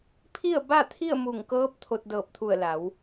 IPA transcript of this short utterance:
pʰ i˥˨ ə̯ b a˥˨ t̪ʰ i˥˨ ə̯ m u˧˩ ŋ k ɤː˧˥ p̚ t̪ʰ o˧ t̚ d ɤː˧˩ p̚ t̪ʰ u˧˩ ə̯ l a˩˧ w

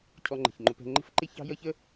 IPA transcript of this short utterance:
cʰ ɔ˧ ŋ͡ǃ ə̤˩ ç ŋ͡ǃ ʊ˧ p ɛ̤˧ ŋ͡ǃ ə̤˥ f ǃ ɪ˥ ç ɑ̤˥ j ʌ˥ ç ə˥

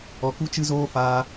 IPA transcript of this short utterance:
ɔ˧ k u˦ t͡ʃ ɨ˦ z oː˦ f aː˧

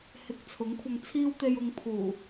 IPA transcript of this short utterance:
h ɪ˧ k̚ t͡sʰ ʊ˨˥ ŋ kʷʰ ɐ˧ ŋ t͡sʰ iː˥ w t̪ e˧ j ʊ˨˧ ŋ pʰ uː˨˩

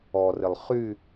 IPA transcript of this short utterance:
ɔ r ɪ lˠ χ y

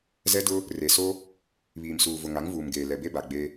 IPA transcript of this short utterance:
z ɛ˦ d ʊ˦ | r e˨ s o˦ | β iː˨ m s uː˨ v ʊ˨ ŋ a˨˦ ŋ v uː˨ m ɡ eː˨ l ɛ˨ b e˦ b a˨ ɡ͡b e˦

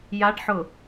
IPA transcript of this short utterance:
j a ɖ ħ ʊ

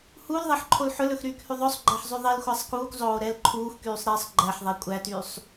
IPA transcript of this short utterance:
h u l ðˤ e ħ ǃʰ o l ħ ɵ l ɵ x ɾ yː k h y ðˤ ɵ sˤ ɡ͡ǃ æ ħ zˤ y ðˤ e l xʷ æ sˤ k uː k zˤ oː ɾ ɛː l ǃʰ uː x k yː sˤ ɾ e sˤ ɡ͡ǃ æ ħ ðˤ ɛ kʷʼ æ t yː sˤ

